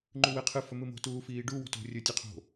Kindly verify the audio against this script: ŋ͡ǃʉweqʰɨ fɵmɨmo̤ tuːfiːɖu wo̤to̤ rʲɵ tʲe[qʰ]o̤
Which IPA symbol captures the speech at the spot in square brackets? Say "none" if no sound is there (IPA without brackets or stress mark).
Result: qʰ